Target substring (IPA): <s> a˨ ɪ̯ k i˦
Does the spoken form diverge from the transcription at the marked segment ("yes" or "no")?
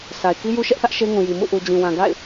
no